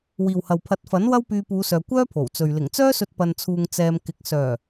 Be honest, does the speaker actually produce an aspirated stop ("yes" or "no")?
yes